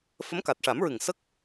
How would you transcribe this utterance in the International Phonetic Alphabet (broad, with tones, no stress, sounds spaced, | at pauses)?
f ə˧˥ m k a˨˩ t̚ ʂ a˨˩˦ m ɹ ɨ˨˩ ŋ s ə˦˥ k̚